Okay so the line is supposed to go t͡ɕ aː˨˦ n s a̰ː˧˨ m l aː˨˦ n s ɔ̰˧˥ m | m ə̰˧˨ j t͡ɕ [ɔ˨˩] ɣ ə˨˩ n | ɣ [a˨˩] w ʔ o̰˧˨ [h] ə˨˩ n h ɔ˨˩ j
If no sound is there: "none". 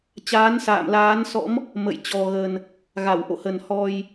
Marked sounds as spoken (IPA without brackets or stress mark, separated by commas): ɔ˨˩, a˧˩, h